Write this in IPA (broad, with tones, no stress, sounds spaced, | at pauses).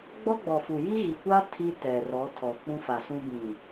ɡ͡b ɔ˦ ɡ͡b ɔ˨ f u˨ j i˦ ɣ i˨ kʷ a˦ tʰ i˦ t ɛ˨ r ɔ˨˦ tʰ ɔ˨ k͡p ũ˦ f a˨ s ũ˦ b ĩ˨